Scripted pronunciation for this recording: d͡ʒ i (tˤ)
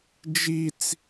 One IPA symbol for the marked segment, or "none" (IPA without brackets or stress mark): t͡s